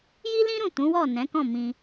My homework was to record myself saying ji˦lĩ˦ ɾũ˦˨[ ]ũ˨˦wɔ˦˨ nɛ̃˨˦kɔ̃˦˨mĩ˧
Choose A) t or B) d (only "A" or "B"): A